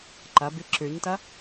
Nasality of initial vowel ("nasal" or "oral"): oral